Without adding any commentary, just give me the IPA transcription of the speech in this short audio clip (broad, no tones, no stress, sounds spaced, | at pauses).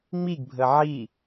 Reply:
ŋ͡m i ɡ bʱ ə ʕ i